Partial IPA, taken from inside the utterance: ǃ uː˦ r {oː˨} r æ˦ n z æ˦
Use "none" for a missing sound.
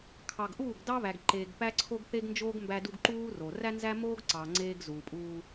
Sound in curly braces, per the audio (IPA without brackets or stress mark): o˨